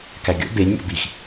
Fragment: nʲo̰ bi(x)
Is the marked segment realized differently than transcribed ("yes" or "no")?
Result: no